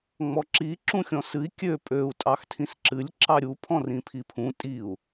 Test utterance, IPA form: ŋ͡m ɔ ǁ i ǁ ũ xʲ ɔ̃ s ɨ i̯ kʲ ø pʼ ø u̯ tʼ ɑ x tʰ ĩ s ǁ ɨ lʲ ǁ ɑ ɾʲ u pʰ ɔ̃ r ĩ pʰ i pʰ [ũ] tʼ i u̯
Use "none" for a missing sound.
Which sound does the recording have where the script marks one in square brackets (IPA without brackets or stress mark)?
ũ